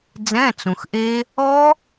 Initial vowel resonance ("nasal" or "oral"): nasal